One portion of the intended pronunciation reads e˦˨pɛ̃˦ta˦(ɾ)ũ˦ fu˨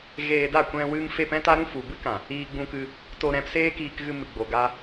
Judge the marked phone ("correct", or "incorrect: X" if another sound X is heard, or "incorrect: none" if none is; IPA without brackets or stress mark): correct